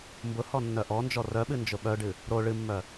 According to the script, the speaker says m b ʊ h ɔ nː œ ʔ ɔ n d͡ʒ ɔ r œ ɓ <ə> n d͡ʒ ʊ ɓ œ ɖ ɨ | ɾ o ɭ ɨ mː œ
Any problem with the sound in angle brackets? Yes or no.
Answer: yes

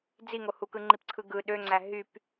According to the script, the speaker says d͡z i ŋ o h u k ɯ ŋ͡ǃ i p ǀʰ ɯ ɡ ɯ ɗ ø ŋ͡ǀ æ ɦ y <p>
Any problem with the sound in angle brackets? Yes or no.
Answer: no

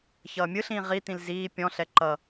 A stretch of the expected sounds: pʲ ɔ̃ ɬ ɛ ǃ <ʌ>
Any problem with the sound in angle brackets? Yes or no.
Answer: no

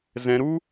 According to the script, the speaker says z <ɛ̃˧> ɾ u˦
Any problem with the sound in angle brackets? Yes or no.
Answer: no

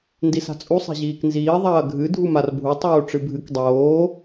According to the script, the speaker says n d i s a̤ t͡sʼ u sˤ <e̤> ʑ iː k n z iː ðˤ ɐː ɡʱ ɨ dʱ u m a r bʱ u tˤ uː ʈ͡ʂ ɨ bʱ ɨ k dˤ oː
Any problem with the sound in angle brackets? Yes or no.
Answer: no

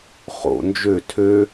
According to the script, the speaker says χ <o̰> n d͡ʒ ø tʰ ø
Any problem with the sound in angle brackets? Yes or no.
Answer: no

